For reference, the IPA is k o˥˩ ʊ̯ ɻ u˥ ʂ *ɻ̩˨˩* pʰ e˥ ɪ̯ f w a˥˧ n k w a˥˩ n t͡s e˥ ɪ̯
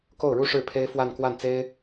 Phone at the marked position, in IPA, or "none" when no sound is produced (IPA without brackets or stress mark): ɻ̩˥˩